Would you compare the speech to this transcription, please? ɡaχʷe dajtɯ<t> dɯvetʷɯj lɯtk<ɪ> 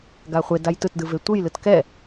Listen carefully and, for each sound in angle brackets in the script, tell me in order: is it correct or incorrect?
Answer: correct, incorrect: ɛ

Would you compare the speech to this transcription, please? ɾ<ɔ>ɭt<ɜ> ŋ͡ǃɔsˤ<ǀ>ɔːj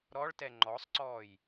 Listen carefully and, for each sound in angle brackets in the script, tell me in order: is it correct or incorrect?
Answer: correct, incorrect: ɛ, correct

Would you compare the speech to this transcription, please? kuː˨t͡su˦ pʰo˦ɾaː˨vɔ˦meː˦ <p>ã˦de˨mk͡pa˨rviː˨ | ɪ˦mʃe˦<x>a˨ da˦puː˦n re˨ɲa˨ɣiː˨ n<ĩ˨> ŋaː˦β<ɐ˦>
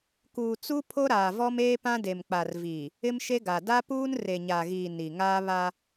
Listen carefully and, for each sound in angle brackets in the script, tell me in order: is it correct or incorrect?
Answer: correct, incorrect: ɡ, incorrect: i˨, incorrect: a˦

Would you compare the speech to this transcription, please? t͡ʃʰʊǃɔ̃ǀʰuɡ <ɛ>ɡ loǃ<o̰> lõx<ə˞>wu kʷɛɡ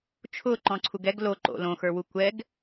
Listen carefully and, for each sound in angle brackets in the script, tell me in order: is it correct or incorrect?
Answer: correct, correct, correct

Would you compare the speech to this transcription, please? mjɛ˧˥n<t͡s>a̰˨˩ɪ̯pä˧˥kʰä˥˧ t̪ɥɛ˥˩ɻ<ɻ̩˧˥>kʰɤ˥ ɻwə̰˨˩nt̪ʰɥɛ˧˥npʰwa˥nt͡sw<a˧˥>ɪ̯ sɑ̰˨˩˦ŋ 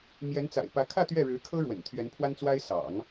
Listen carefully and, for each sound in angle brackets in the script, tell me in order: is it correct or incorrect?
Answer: correct, correct, incorrect: a˥

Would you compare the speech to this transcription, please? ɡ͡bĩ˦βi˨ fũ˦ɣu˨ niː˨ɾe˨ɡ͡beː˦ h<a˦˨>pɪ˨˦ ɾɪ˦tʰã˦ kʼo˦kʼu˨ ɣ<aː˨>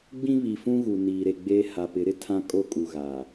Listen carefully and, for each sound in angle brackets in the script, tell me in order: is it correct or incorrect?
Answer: incorrect: a˨, correct

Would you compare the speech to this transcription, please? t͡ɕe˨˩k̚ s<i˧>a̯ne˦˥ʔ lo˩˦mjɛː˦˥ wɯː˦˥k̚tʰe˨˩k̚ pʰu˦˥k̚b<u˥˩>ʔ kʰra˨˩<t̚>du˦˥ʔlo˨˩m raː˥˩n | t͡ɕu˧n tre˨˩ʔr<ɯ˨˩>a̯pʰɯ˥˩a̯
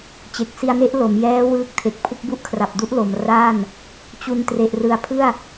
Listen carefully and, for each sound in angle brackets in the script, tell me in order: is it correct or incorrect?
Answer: correct, correct, incorrect: p̚, correct

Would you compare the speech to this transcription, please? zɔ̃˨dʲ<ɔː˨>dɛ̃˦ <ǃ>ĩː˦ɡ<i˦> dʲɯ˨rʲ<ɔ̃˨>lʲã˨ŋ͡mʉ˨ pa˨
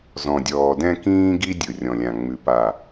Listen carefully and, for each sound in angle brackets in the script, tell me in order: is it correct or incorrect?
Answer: correct, incorrect: k, correct, correct

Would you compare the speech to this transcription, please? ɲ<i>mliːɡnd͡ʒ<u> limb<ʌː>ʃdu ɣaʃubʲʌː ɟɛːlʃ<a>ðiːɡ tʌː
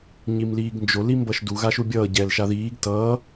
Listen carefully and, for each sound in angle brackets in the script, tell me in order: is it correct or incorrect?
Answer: correct, incorrect: o, incorrect: ʌ, correct

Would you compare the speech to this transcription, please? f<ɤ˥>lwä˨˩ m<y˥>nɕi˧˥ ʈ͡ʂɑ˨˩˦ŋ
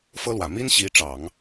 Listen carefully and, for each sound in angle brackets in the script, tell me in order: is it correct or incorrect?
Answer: correct, incorrect: i˥

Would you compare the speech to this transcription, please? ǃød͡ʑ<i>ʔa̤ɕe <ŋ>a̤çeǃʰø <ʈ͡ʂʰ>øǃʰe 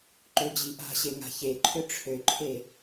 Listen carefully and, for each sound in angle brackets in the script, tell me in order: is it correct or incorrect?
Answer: correct, correct, correct

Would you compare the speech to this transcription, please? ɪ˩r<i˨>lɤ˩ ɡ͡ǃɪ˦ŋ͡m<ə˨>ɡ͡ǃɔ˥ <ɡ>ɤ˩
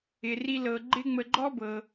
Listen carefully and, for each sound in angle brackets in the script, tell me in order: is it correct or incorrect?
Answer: correct, correct, incorrect: b

